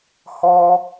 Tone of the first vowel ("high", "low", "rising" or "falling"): high